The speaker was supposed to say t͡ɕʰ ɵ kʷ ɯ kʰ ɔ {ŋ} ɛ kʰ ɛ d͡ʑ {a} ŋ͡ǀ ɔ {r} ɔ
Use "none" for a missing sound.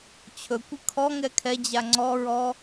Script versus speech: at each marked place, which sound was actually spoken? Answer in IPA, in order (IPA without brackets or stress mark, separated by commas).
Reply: ŋ, a, ɹ